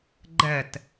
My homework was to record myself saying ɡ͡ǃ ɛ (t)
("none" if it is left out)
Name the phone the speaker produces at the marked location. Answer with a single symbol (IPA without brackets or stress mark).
t